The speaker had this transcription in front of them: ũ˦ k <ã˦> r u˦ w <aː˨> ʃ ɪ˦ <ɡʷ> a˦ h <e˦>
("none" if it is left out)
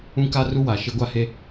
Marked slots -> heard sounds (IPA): a˦, a˨, ɡʷ, e˦

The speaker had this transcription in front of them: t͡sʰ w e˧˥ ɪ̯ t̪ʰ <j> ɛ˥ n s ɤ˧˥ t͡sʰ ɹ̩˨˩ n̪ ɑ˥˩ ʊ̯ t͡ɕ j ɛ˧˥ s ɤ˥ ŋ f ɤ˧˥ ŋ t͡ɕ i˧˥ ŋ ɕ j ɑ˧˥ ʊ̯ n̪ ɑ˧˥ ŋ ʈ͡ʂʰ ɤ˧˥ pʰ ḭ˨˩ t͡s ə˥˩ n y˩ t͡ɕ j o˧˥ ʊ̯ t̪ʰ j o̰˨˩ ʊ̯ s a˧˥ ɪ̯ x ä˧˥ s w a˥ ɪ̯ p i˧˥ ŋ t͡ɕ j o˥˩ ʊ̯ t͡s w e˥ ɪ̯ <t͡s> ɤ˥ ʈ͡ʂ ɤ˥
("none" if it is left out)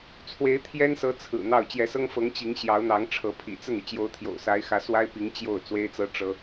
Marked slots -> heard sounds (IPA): j, t͡s

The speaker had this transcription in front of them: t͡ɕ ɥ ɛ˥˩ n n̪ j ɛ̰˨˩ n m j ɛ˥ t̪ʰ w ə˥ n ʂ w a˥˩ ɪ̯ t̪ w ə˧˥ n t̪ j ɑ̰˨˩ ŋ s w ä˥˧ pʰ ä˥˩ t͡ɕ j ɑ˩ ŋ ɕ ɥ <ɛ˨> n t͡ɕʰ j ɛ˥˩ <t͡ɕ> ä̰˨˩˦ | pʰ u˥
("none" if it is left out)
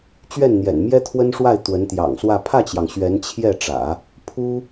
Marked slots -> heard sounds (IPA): ɛ˧˥, ʈ͡ʂ

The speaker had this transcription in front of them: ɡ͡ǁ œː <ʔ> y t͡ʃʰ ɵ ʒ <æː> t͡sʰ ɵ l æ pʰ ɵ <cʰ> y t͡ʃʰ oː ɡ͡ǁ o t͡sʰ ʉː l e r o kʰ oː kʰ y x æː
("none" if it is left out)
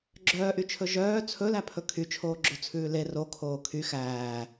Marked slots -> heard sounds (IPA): ʔ, œː, kʰ

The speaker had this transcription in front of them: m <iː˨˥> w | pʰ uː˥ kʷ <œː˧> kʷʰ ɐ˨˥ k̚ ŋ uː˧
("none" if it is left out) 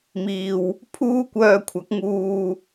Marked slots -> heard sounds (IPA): iː˧, œː˧

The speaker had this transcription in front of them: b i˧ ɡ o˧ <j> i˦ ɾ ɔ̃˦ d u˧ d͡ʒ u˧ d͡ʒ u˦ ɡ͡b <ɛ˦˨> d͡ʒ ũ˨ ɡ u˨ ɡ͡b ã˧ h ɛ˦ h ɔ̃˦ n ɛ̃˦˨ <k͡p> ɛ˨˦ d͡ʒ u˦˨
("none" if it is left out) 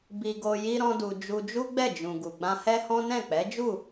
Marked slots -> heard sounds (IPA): j, ɛ˦˨, k͡p

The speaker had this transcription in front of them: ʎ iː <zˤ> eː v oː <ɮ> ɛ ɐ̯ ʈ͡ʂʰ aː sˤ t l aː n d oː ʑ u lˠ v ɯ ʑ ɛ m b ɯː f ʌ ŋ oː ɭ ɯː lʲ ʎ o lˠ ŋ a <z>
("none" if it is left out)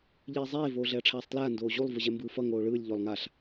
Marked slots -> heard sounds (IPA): zˤ, ɮ, ɬ

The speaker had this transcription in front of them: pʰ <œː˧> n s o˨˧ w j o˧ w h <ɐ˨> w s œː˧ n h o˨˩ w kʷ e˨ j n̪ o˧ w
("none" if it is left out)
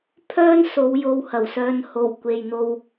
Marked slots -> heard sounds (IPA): œː˥, ɐ˨˩

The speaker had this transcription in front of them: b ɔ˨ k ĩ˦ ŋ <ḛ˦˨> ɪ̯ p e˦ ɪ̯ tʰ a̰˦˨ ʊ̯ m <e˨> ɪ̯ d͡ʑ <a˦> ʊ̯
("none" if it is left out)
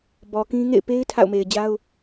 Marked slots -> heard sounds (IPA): ḛ˦˨, e˨, a˦

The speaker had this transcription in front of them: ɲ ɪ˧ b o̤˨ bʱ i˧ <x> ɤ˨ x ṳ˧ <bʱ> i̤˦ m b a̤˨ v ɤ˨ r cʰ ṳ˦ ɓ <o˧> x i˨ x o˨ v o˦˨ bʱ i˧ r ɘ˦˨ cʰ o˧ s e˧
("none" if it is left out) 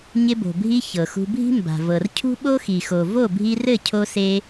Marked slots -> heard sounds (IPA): ç, bʱ, o˦

